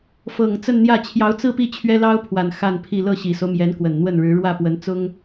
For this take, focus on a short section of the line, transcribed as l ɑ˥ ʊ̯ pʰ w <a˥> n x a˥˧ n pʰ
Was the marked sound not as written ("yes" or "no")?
yes